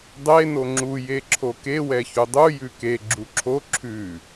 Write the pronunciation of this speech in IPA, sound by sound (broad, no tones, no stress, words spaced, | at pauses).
dˤe noŋ͡ǁu jeǁʰoke wɛçudˤu jʉke ɡ͡ǁuǁʰo ǁʰʉ